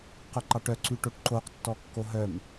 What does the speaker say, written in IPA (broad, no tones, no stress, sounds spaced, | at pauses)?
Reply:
q œ ǃ ɑ ʈ œ ǀ y ʈ o ʈ ǃ o q tː ɔ kː o ɦ œ m